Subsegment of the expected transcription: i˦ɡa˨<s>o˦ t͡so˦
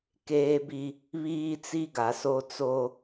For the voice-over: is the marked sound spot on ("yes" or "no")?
yes